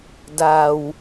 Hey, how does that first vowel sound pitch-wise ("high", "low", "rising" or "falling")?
low